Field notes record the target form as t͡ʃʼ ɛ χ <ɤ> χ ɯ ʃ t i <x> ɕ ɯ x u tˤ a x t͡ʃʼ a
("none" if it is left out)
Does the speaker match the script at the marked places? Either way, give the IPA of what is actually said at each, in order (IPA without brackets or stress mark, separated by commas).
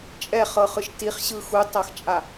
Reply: ɤ, χ